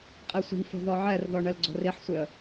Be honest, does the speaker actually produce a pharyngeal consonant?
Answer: yes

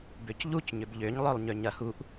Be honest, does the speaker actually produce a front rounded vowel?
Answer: yes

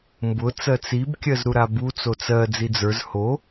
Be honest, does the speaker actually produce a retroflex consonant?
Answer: no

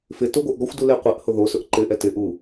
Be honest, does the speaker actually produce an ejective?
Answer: no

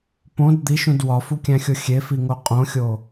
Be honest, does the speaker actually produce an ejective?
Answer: yes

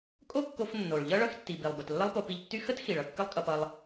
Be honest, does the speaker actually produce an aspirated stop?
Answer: no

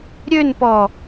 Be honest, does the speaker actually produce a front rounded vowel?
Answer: yes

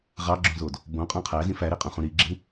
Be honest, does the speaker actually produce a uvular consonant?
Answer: yes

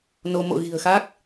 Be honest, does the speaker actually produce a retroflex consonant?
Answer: no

